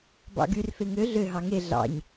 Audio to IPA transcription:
bɑ̰ɡyr feŋø ɮø ɦɑŋe ɮɑ̰ɲ

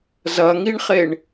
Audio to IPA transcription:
zɐŋiɳχeɳ

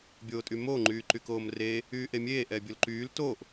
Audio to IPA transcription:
bʲoːtʼymoː ŋ͡ǃyːǃykoːmreː | yːʔemʲeː ʔɛbʲolǃyːl toːʔ

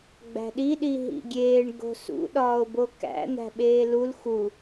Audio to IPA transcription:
ɡ͡bæ̤ɗi ɗiɦḭɡʲeːɳ ɡo̤sṵ ɗɒːo̯bokæ̰ n̪æ̤ɓeːlul xu

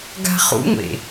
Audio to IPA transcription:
ɡa̤χṵŋʷḛ

